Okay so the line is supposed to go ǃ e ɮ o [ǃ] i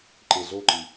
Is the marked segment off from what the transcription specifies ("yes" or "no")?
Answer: no